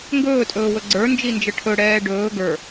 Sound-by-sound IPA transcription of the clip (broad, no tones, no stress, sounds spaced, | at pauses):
ŋ ɡ ɵː tʼ ɵː w ɵ ɡ͡ǀ ə˞ n d͡ʒ i n d͡ʒ ə ʈʰ ɵ ɽ ɛː ɖ ɵː ɡ ə˞